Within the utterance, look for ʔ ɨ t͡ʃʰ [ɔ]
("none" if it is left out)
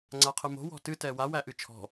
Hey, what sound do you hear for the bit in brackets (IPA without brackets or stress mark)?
ɔ̤